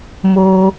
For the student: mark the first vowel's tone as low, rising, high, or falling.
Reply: low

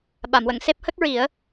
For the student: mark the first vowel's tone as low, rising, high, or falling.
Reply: low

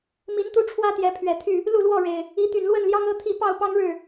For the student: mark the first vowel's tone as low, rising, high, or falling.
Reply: rising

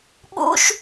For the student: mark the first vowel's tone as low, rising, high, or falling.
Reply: high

